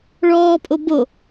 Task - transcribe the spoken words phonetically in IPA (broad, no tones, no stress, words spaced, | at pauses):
ɭɔːpʼo bo